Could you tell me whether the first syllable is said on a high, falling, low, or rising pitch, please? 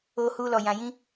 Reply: high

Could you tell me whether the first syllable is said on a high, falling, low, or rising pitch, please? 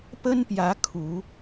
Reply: high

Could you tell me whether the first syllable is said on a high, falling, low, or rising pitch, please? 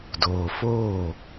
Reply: low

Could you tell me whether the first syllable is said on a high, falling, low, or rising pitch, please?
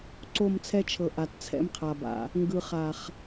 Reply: falling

